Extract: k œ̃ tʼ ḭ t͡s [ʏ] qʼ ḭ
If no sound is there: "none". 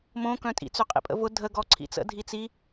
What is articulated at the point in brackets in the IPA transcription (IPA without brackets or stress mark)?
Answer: ʏ